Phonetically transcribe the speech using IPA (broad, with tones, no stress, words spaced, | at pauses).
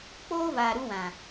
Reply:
k͡poː˦vaː˨ ɾu˦wã˨